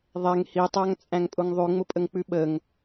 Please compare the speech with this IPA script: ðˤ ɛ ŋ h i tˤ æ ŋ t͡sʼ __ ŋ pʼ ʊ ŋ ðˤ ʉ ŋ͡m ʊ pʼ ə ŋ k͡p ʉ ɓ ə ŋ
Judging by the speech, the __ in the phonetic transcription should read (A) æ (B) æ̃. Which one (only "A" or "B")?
B